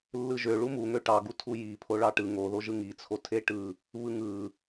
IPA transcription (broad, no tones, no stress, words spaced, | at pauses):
lːɯʒø ɭumuŋø ʈɑɡu tʰuji pʰoɭɑʈɯ ŋoðoʒɯ ŋit͡sʰo tʰeʈɯ | βɯŋɯ